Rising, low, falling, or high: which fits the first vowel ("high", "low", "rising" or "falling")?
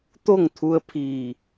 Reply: falling